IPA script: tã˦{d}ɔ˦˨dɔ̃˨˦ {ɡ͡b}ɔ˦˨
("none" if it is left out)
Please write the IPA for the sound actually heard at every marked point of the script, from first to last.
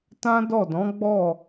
d, ɡ͡b

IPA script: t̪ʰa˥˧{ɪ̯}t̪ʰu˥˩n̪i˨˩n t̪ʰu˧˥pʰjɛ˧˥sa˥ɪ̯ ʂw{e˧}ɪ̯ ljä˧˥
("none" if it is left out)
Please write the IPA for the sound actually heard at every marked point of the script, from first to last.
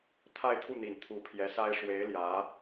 ɪ̯, e˧˥

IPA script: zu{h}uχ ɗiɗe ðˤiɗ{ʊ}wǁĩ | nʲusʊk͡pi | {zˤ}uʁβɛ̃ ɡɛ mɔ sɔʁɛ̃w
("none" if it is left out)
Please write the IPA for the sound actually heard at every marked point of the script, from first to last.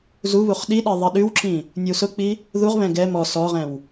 β, ʉ, ð

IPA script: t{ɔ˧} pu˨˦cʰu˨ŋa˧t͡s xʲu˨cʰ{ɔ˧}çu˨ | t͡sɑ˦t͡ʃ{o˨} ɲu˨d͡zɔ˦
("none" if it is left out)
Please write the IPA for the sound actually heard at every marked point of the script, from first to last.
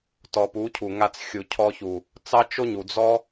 ɔ˧, ɔ˧, o˦

